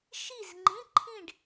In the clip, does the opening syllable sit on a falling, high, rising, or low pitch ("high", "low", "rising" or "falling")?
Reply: falling